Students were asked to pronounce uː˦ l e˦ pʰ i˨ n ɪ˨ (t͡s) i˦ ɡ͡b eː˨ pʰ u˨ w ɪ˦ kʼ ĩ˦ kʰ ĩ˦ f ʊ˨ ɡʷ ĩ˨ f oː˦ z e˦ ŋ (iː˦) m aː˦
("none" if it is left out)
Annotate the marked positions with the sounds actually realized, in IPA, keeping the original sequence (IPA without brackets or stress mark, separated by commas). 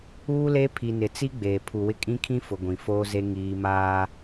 t͡s, iː˦